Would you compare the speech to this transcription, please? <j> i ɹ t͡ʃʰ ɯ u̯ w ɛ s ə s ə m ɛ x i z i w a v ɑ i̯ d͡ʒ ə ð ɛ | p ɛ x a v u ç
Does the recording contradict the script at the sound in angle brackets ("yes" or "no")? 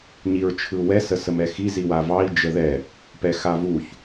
yes